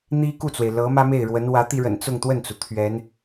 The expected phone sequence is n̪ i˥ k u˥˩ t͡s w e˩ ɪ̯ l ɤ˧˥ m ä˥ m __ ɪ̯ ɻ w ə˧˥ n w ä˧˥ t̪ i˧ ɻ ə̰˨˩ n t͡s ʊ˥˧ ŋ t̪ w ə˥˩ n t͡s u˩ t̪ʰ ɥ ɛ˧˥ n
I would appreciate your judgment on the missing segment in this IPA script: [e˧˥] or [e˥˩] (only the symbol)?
e˥˩